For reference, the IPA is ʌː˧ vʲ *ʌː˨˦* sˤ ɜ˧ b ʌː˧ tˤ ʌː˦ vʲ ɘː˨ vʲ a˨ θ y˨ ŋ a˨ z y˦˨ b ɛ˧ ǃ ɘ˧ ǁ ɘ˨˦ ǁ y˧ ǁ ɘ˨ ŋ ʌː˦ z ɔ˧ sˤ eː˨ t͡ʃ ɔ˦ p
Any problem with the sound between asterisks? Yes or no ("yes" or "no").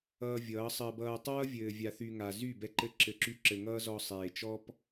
no